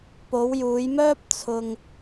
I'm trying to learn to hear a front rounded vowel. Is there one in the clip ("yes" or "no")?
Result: yes